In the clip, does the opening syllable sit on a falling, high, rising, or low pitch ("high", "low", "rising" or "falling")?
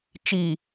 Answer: low